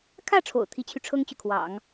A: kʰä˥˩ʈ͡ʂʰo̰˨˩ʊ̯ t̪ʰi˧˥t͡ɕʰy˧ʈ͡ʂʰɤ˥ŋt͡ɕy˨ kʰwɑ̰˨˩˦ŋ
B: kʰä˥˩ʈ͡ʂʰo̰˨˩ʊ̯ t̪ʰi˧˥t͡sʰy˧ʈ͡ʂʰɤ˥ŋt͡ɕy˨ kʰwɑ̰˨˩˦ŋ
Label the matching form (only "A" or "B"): A